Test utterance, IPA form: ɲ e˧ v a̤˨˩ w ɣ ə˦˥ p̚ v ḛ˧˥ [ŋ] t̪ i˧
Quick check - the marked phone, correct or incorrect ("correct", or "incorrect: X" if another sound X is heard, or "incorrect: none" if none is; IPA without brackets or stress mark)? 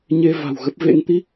correct